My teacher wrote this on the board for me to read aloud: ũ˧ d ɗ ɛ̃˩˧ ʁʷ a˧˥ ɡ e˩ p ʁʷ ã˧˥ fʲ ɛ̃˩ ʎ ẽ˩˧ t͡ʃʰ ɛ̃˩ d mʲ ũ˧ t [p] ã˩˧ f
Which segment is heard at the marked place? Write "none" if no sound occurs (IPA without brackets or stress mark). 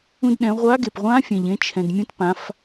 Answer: p